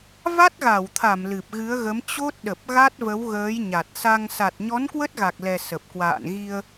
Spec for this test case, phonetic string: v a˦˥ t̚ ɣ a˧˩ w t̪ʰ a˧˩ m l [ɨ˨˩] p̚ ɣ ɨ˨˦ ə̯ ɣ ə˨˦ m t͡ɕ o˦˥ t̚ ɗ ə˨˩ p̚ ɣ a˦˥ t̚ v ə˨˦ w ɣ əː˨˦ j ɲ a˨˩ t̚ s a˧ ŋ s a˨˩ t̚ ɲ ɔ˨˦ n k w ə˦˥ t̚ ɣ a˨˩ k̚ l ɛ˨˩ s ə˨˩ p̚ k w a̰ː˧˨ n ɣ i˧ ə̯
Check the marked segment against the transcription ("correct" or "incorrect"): correct